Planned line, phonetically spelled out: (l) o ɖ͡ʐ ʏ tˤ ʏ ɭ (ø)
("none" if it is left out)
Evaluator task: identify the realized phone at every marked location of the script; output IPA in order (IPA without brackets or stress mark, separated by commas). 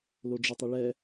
l, ɛ